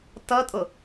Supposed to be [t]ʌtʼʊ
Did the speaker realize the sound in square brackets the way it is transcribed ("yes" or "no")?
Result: yes